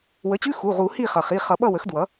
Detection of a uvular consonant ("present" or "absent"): present